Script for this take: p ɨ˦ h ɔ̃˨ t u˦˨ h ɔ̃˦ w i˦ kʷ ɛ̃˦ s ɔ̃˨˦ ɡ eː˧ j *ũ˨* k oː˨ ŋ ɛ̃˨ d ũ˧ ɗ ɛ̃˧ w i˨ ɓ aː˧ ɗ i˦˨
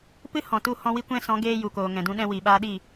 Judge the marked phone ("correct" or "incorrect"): incorrect